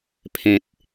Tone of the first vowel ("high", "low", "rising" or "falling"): low